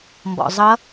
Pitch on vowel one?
low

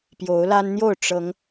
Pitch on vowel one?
rising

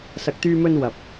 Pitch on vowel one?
low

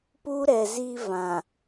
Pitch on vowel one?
high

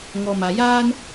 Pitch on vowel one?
low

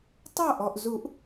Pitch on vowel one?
falling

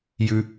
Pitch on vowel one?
low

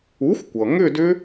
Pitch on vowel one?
rising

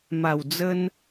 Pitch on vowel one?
low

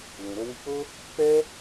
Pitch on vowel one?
low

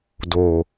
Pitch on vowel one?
low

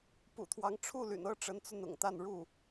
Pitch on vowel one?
low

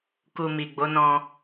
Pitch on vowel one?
low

